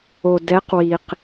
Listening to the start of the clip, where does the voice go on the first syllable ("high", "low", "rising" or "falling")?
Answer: low